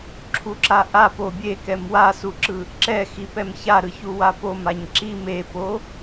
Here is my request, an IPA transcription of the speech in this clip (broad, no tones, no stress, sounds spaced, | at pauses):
ǁʰ u ǁ a ʔ a p o bʲ e k ɛ m w a s u ǁ ɯ | ǁ ɛ x i p ɛ m ç a ɾ ɯ ç u w a p o m a ɲ ǁ i m e p o